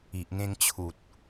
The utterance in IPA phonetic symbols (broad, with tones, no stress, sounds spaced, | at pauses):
i˨ ʔ ŋ ẽ˧ ŋ t͡ɕʰ u˨ t̚